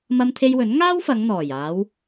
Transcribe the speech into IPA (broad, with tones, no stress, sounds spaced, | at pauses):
m ɐ˧ m t̪ʰ e˧ j w ɵ˨˥ n ŋ aː˥ w f ɐ˨˧ ŋ n̪ ɔː˨˩ j aː˨˧ w